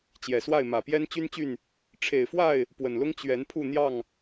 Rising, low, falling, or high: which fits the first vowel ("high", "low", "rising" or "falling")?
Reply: low